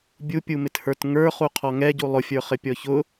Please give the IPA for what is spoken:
bʲupʲumɪthə˞t ŋə˞χu qʰɔŋɛɟu lˠʊfʲə˞ χɪpʲɔçʊ

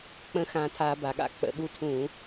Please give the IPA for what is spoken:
k͡pə̃˧˥xã˧˩tʰa˧˩˧ ba˩ɠa̰˥k͡pə̰˧˩˧ɠu˧˥ tʰũ˧˩˧

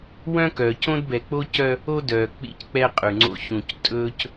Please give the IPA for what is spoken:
wœ̃˦kœː˨c õ˦dbɛ˨ k͡po˦cœ˦ | o˦dœː˨ k͡pḭ˦˨ck͡pɛ˦qʼʉ˨ŋ͡ǀo̰˦˨ çũ˨ctʼɵ˦c

